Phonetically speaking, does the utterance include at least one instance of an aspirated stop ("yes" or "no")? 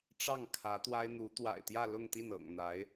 yes